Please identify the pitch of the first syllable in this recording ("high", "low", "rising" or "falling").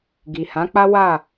low